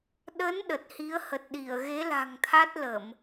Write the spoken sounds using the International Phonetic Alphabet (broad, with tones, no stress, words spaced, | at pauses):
ɗə˨˦n ɗə˨˩t̚hi˨˦ə̯ hə˨˩t̚ɗi˧˩ə̯ɣe˨˦la̤˨˩ŋ t̪ʰa˦˥t̚lə˧˩˨m